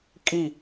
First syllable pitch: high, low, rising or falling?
falling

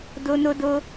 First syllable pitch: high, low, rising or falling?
high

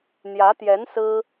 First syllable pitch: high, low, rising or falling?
rising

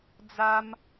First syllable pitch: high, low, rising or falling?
high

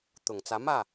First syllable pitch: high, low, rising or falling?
low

